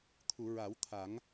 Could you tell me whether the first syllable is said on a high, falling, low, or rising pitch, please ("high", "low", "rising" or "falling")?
low